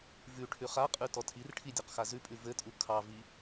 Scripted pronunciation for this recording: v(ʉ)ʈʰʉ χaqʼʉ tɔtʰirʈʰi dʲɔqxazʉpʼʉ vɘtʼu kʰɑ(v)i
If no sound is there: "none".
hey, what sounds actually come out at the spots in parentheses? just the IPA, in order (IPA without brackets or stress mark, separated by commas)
ʉ, v